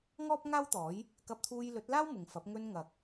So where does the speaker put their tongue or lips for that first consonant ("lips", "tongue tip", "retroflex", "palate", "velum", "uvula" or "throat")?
velum